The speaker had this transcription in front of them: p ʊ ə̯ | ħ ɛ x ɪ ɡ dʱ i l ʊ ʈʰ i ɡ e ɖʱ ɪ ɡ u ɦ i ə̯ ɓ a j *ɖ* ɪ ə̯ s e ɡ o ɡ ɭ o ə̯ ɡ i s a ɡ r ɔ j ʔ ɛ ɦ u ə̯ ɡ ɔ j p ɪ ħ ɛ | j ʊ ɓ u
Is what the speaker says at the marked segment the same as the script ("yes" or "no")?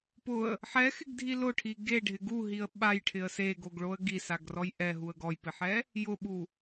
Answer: no